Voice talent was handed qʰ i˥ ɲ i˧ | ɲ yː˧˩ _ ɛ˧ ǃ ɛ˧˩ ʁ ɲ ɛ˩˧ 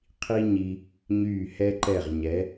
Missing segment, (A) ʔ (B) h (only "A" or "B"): B